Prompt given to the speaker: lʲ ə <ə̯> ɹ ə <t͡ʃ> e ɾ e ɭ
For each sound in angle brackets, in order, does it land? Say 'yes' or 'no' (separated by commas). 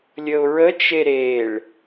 no, yes